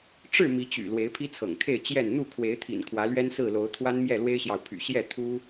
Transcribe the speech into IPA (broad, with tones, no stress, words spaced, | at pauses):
ʈ͡ʂɻ̩˥˨ mi˨˦t͡ɕy̰˨˩ lwe˨˦ɪ̯pʰi˦t͡sʰɤ̰˨˩ŋkʰe˥˨ɪ̯ t͡ɕjɛ˥˨n n̪u˥˨kʰwe˨˦ɪ̯t̪ʰḭ˨˩n kʰwä˨˦lɥɛ˦nsɹ̩˥˨lo˨˦ʊ̯ t̪ʰwa˦nmjɛ˥˨lwe˦ɪ̯ɕjɑ˨ʊ̯ pʰy̰˨˩ ɕjɛ˥˨ t̪ʰu˦